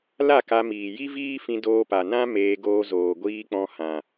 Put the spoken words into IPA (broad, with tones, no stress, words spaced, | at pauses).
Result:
la˦˨ka˧ miː˨ji˦viː˦ fĩ˧doː˧pa˨nã˦ meː˧ɡoː˧ zoː˨ɡʷiː˧k͡pɔ̃˧ hã˨